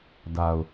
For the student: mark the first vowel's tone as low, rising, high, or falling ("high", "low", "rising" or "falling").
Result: low